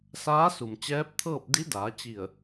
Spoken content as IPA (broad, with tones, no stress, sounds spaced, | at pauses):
s aː˧˥ s u˩ m t͡ɕ ɛː˧˥ p̚ t̪ʰ ɤː˥˨ p̚ d i˧˥ d aː˩˧ t͡ɕ i˧˩ ə̯